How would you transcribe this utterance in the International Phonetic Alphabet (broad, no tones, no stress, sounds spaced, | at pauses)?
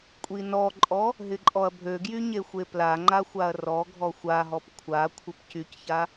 kʷʼ i n ɔ ǃʼ ɔ | ɦ ɪ ǃʼ ɔ ɐ̯ bʱ ø ɡ j y ɲ e xʷ e p l a ŋ͡ǃ a xʷ a ɐ̯ r ɔ ɡʱ ɔ xʷ a ɦ ɔ p kʷʰ a kʷʰ ɪ p c y c ç a